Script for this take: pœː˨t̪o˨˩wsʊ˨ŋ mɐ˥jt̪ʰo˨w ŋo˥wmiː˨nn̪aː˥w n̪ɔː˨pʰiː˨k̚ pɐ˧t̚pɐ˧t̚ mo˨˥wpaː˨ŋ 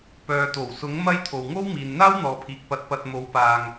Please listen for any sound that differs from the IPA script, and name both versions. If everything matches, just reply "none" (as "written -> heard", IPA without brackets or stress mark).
ʊ˨ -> ʊ˨˥